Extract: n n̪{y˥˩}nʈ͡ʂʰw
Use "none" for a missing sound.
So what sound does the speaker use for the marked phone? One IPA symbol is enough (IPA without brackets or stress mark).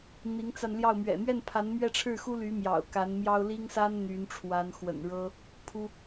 y˧˥